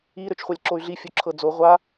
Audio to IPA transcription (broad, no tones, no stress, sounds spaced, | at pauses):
i ɾ ø t͡ʃ χʷ ɑ lʲ ǁ o y̯ ɮ i fʲ o ǁʰ ɤ d͡z o ʁʷ a